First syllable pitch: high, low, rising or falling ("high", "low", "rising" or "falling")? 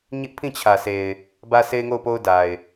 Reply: high